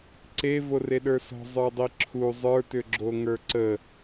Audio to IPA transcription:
ǀe voreɗə˞sɔ̤ zˤə˞dˤiǁʰu zˤə˞tʏɡ͡ǁo ŋə˞ǀə

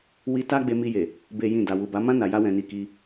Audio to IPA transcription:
wi˧ ta˦ɡ͡be˧mi˧je˨ | be˦jĩ˦˨da˧ wu˨ba˨˦mã˦ na˧ja˦wɛ̃˧ni˧ ki˧

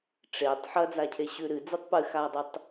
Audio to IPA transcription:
ʈ͡ʂetˤ ħɐd͡zacʰe ɕʉɾɨ d͡zɨtˤpɨxadˤɨtˤ

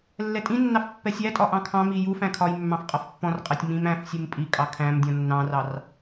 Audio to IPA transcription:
lːɛtʼĩnːɑf pːɛsʲætʼɒ ʔɑ̃kʰɑ̃mi jufæ̃ kʰɒjmːɑ̃f qʼʌfpːɔ̃rqʼɛtʲ mĩm æ̃f sʲumpʼikʼɑ kʰæ̃mdʲɔ̃ nːɑ̃rɑr

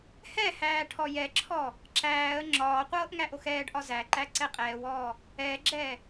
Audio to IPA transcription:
hɛhæː ʈʰɔjɛǁʰɔ | ǁæːə̯ ŋ͡ǁɒːqʷɤːʔ ŋæʔoxɛːɖʔɒ zæǃæ ǀɛqʼɛːwɔː | ɛːɡ͡ǁɛː

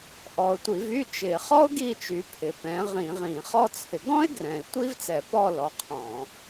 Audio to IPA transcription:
ʔɔ˨˩ʊ̯tʷi˧˩˧vy˧˥˧ t͡ʃɪ˧˩˧ χɔ˥ʊ̯ ɡi˦˨t͡ʃy˨˩ pʰɪ˨˩pɛ̃˨˦ ʁĩ˧˩˧ʁĩ˧˩˧χɔ˥t͡sʰɪ˨˦ ɡɔ̃˥ɪ̯ ɡrɛ̃˨˩ɪ̯tʷi˥vt͡sɛ˧˩˧pɔ˦˨ lɔ˨˦qʰɔ̃˧˩˧

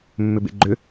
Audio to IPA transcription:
mːʏbḛɡ͡ǃʏ

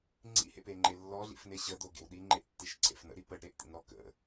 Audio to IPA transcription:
ŋ͡ǀḭhḛpeŋ͡ǃe lːɔɮḭfne ɕəd̪oɡḛw ɗiŋ͡ǃeʔtːiʃǀʰḛf nə̰ɾi pəɖɾeʔt̪ḭnɾɔ kə̰

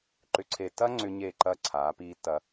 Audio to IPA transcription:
ǃʏ˨ǀʰe˨tːɐ˦ ŋ͡ǀʏ˦ ɲe˦˨ǃɐː˦ǀʰaː˨˦ piː˦tːɐ˦

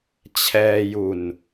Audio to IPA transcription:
t͡ɕʰɛː˧ju˨˩n

